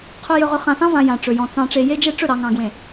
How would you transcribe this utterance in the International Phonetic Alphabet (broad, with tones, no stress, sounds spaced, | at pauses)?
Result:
qʰ ɵ˨ j ɵ˨ ʁ ɵ˨ χ ã˨ s ɑ̃˦ v ã˨ j ã˨ ʈ͡ʂ ɵ˨ j ɔ̃˨ t͡s ɑ̃˨ ʈ͡ʂ e˨ j e˦ d͡ʒ e˦ ʈ͡ʂ ɵ˦˨ ɾ ɑ˨ ŋ ɑ̃˨ ɡ w ẽ˨